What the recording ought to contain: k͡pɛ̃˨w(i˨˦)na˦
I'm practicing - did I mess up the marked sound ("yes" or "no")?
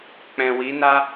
no